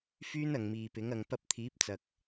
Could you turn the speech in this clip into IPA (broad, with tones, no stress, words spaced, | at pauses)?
fyː˥nɐ˨ŋmiː˨pɪ˨˥ŋ ɐ˨ŋpɐ˧p̚t̪ʰiː˨˥p̚t͡sɐ˨k̚